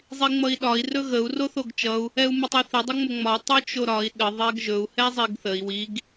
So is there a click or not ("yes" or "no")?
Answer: no